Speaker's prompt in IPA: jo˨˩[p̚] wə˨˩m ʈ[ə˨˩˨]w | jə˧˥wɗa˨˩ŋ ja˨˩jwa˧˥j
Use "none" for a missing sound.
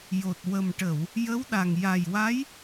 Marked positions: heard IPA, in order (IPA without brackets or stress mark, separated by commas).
t̚, ə˨˩˨